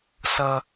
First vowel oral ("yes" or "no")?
yes